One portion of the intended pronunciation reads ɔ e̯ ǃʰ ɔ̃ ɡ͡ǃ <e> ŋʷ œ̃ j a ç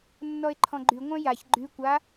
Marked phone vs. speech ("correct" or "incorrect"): incorrect